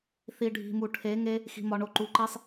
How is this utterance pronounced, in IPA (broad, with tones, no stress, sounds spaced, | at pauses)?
θ i˨ ɖʱ i̤˨ m u˨ ʈʰ e˨˦ ŋ e˦ | x i̤˨ m ɒ˨ ɳ o˨ ǃ u˨ ǃ i˦ sˤ